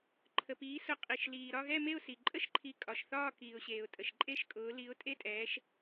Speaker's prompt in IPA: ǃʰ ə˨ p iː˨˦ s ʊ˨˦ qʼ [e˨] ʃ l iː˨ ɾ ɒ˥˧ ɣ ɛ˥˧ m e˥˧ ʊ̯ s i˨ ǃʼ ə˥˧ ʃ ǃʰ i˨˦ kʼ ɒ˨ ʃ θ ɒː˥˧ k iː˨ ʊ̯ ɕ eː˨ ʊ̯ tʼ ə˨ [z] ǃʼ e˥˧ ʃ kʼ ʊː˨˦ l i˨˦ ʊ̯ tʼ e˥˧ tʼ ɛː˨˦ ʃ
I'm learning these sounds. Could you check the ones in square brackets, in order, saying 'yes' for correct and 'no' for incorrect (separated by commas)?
no, no